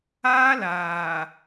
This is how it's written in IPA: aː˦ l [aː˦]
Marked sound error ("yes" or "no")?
yes